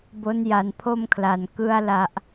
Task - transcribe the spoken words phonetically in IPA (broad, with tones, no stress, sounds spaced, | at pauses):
b o˦˥ n j a˨˩ n pʰ o˥˩ m kʰ l a˩˦ n k ɯ˧ a̯ l a˨˩ ʔ